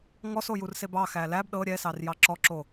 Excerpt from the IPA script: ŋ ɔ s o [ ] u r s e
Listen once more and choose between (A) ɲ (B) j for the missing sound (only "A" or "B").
B